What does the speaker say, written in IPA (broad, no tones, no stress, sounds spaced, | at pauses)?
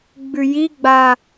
ɡ͡b ʉ j i ɡ͡b a